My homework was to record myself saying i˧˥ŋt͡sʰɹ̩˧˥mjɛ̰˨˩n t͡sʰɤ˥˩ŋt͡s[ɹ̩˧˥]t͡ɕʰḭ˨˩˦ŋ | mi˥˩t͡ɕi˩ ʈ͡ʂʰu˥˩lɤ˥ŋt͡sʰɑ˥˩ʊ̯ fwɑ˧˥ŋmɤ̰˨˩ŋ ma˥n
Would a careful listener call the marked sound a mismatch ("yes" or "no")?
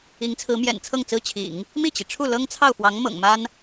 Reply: yes